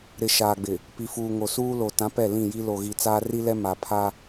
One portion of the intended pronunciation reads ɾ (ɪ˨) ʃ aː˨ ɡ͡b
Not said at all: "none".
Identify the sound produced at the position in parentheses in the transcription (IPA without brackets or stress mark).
ɪ˨